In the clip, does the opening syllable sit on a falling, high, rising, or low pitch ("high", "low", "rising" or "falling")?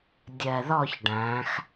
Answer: low